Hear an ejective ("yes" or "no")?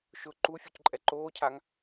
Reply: yes